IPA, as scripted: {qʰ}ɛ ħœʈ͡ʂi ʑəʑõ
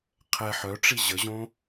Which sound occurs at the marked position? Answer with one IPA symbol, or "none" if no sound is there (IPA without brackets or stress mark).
qʰ